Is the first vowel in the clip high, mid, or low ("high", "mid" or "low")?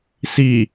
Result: high